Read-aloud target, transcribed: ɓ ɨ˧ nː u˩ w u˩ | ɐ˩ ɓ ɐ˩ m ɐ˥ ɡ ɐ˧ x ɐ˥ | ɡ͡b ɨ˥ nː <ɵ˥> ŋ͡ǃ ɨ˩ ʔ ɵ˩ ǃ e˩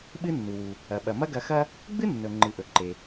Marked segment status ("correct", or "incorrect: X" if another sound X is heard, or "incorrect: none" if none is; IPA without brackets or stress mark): incorrect: ɵ˩